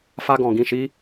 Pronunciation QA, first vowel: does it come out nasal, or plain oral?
oral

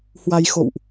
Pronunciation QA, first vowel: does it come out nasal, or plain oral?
oral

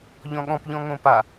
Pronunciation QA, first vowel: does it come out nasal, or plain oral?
nasal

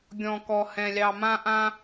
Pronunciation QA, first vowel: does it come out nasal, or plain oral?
nasal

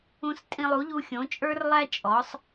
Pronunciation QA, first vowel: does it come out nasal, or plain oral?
nasal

